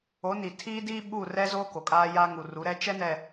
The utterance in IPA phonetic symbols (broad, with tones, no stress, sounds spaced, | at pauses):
o˨˦ n i˨ tʰ iː˦ d iː˦ ɓ u˦˨ r ɛ˦ z o˦ k o˨ kʼ aː˦ j a˦ ŋ u˨ r u˨˦ ɾ ɛ˦ t͡ʃ ɛ˦ n ɛ˨